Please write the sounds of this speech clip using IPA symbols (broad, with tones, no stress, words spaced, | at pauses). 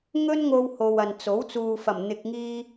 ŋɵ˥nŋo˧who˨w ɐ˨nt͡so˨˥w t͡suː˨fɐ˨˩m n̪ɪ˨k̚ŋiː˧